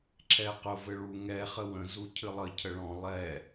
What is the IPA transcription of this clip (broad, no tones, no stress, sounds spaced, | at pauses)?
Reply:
ǁʰ ɛ q ʊ v ɘ ɭ u ŋ ɛ χ ə w ə̃ z u cʰ ɨ lˠ ə cʰ ə ɭ ɔ̃ lˠ ɛ